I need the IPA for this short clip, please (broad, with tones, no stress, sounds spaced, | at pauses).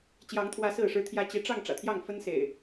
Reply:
t͡ɕ j ɑ˨˦ ŋ t̪ʰ w ä˨˦ s ɹ̩˥˨ ʂ ɻ̩˦ t̪ʰ j ä˦ t͡ɕ i˨˦ ʈ͡ʂ ɑ˥˨ ŋ ʈ͡ʂ ä̰˨˩ t̪ʰ j ɑ˥˨ ŋ f ə˦ n s ḛ˨˩ ɪ̯